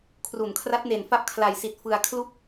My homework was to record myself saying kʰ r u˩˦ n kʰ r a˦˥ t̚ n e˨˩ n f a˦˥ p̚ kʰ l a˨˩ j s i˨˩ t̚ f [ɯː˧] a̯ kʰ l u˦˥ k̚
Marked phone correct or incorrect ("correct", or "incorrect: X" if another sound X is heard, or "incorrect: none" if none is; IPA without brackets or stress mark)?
incorrect: ɯ˧